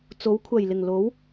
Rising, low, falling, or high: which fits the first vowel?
rising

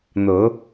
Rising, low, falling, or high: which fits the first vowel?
rising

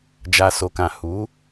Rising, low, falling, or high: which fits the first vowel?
low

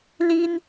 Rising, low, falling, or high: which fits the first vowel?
high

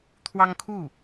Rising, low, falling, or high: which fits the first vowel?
high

